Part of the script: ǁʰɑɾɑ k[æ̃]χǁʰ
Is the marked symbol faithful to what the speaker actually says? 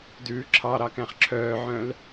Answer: yes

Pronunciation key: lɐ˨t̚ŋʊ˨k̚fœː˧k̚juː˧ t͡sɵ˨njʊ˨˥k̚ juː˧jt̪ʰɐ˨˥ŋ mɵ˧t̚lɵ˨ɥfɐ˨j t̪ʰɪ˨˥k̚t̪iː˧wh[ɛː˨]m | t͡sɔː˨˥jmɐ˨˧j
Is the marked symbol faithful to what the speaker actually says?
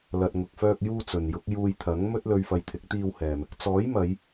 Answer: yes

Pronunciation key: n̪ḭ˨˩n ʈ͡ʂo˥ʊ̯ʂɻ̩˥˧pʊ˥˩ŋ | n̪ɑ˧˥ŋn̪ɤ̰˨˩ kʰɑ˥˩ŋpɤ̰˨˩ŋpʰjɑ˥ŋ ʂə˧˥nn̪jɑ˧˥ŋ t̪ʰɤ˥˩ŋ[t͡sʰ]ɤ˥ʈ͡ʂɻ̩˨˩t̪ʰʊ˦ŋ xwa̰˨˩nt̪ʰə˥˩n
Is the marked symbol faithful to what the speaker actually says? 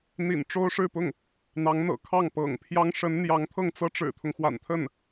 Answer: no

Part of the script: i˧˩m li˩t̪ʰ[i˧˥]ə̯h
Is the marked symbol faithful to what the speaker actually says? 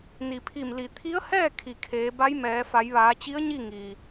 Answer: yes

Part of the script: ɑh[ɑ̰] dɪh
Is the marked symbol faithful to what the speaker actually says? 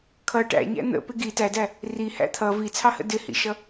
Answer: no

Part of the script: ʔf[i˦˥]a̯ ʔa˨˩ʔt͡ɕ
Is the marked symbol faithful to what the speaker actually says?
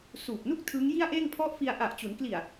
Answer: no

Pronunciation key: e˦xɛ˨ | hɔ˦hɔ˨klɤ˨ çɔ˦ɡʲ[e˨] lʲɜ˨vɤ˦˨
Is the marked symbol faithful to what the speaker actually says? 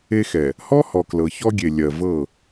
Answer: yes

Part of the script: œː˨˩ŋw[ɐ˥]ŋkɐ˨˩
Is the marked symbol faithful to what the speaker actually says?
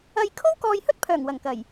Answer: no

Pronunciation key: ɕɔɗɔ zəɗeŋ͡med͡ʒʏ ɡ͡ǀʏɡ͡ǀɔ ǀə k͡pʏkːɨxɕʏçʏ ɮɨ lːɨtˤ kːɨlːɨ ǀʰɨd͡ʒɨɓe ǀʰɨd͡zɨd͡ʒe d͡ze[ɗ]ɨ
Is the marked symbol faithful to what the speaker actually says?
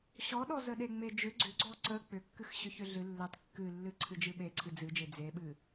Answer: no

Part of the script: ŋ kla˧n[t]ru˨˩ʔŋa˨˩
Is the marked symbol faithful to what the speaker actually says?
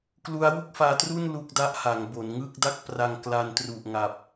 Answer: yes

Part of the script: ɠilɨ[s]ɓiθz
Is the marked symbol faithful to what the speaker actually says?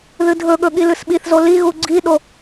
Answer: yes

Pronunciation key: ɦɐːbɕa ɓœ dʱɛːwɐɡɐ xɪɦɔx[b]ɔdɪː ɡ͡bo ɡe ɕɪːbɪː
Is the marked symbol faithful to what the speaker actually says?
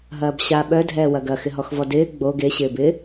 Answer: no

